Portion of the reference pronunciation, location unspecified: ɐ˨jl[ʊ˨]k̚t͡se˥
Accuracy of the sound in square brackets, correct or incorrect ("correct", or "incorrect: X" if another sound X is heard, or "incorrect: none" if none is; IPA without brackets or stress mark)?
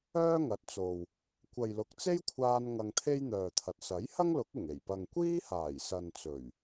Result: correct